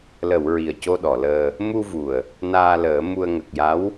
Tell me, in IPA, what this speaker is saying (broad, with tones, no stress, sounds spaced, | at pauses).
l ə˨˩˨ w ɹ i˨˩ ə̯ c o˧ ɗ ɔ˨˩˨ l əː˧ | m u˧ v u˨˩ ə̯ | n aː˧ l əː˨˩˦ m u˧ ə̯ ŋ ə˨˩ k̚ j a˧˥ w